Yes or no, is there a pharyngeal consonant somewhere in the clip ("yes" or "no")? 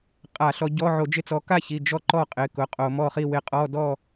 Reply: yes